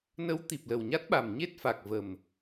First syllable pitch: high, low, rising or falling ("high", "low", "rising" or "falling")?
rising